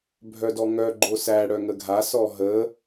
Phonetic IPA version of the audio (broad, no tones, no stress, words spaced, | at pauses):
bʱœdɔŋœ ɡ͡ǃosæ ɽœŋəɡʱa sɔɦə